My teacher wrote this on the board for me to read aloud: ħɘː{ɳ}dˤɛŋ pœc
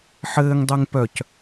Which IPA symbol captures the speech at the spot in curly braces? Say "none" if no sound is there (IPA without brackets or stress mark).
ŋ